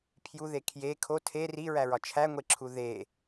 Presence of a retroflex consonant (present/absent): absent